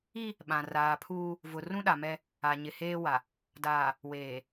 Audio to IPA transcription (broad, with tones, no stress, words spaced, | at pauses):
i˦ | ɓã˨raː˨pʰuː˦ | vʊ˨ rũ˦ɗa˨mɛ˦ | a˨ɲɪ˨heː˦ wa˨ | daː˨ | weː˨